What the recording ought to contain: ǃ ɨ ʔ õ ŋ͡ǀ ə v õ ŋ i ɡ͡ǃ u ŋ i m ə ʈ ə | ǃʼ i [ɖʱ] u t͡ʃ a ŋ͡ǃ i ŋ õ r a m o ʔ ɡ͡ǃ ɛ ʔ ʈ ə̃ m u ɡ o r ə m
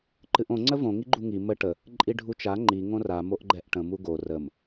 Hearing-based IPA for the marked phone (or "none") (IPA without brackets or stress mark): ɖʱ